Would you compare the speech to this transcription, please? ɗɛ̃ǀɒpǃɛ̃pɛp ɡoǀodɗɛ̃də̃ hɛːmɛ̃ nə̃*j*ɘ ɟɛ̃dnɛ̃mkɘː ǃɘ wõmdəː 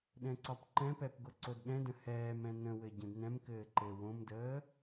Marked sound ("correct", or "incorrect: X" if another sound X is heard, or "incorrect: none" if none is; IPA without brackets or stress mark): incorrect: w